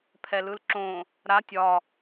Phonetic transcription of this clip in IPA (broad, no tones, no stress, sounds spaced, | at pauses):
pʰ ɛ l ɯ l ǁ õ | ɾ a tʲ ɒ